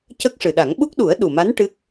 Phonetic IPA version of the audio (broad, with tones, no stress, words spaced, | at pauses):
cə˦˥k̚ʂɨ˨˩ɗa˨˩˦ŋ ɓu˦˥k̚ɗu˨˩˦ə̯ ɗu˨˩ma˧˥n ʈɨ˦˥k̚